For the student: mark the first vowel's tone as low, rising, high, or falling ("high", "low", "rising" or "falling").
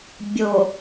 low